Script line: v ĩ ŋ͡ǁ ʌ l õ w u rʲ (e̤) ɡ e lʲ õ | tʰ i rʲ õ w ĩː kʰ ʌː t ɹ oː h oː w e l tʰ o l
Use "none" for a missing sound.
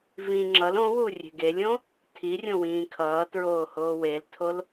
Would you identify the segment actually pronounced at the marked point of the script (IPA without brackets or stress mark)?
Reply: e̤